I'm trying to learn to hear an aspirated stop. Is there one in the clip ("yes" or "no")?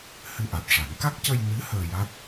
no